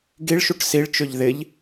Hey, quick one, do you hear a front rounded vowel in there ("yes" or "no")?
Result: yes